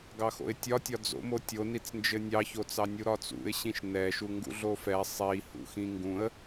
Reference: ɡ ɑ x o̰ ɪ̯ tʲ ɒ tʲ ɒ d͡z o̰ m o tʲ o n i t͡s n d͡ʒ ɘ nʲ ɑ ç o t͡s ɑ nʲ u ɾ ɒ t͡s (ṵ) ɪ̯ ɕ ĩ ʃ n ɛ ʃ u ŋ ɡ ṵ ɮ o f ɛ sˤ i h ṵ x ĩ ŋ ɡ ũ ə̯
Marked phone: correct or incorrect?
correct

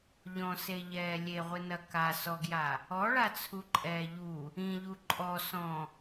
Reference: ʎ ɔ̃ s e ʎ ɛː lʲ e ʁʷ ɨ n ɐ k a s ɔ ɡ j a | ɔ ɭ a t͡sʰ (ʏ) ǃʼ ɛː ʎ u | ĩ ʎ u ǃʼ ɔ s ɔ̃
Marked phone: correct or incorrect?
incorrect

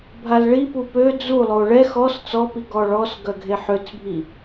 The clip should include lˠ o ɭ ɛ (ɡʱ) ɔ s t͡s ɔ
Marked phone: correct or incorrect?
incorrect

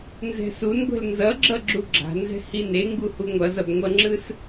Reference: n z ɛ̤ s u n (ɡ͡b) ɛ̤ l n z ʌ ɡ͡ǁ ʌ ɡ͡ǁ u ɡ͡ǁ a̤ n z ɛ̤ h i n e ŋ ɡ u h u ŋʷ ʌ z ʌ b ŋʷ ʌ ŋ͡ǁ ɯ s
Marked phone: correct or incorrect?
incorrect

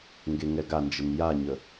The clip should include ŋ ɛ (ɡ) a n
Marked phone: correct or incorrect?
correct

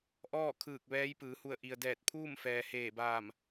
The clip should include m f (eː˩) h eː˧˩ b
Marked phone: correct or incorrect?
incorrect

